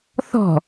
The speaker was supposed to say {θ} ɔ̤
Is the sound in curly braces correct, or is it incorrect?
correct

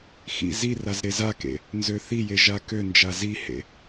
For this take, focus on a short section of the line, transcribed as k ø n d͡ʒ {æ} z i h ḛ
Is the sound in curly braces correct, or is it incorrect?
incorrect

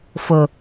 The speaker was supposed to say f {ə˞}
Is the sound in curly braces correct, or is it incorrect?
incorrect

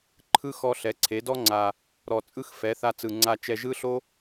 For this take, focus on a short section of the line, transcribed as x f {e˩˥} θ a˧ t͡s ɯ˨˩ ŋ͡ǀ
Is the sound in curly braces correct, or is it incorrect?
incorrect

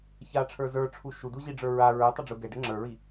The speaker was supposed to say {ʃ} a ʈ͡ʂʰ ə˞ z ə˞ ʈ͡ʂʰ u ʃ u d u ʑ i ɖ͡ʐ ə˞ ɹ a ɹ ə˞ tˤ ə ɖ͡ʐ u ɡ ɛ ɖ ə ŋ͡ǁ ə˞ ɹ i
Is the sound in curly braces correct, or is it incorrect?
incorrect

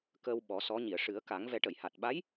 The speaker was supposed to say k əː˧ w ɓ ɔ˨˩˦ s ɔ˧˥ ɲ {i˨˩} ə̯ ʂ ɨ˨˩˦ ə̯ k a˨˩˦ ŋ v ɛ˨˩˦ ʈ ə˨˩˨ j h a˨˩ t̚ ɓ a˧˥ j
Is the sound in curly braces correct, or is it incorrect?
incorrect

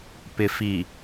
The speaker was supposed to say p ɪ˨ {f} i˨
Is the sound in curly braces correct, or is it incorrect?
correct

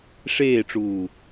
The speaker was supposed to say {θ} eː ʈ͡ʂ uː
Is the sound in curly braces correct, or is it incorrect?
incorrect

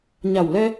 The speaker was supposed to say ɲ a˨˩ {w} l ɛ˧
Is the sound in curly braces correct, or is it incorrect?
correct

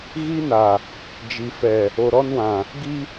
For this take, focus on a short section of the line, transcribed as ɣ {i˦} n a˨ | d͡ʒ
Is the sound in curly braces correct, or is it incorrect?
correct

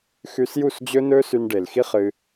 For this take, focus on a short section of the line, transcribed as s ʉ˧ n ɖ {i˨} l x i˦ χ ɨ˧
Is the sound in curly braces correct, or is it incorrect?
incorrect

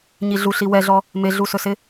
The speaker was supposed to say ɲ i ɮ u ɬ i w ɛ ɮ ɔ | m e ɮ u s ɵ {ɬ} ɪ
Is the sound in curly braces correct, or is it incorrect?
incorrect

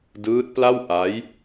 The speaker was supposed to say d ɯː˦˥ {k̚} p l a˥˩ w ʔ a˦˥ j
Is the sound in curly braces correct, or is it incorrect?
incorrect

